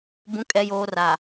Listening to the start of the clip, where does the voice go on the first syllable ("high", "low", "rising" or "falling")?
rising